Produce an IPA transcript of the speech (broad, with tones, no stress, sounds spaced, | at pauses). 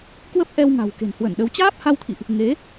k w ə˦˥ p̚ ʔ ɛ˧ w ŋ a̤˨˩ w k e̤˨˩ n h w ə˧˩ n ɗ ə˨˦ w t͡ɕ aː˦˥ p̚ h a˧ w t̪ʰ ḭ˧˨ ʔ | ŋ e˨˦